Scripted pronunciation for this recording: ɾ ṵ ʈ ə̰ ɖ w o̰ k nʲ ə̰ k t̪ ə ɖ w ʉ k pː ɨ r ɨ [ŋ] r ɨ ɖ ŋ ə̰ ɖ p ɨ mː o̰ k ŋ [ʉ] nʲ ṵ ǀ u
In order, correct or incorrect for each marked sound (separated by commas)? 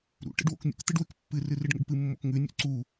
incorrect, correct